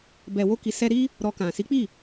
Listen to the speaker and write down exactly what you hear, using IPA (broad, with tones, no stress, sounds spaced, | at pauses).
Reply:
b ɛ˨ w o˧ k i˨ s ɛ˧ ɾ i˦ | ɾ ɔ˧ k ã˨ s i˨˦ k͡p i˦˨